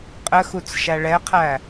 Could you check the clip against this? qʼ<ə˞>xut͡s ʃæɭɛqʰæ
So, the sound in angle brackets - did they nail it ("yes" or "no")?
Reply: no